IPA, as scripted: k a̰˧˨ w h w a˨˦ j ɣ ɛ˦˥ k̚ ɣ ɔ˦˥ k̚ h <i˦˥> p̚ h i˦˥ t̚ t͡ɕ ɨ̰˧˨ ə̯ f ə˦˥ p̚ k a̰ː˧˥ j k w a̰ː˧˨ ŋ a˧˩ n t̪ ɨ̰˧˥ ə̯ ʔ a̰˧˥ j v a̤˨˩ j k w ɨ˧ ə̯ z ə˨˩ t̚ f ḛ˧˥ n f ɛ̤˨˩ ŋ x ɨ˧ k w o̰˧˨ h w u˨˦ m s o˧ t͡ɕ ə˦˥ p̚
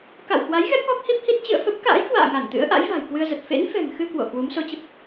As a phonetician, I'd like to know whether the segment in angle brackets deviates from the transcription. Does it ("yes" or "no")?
no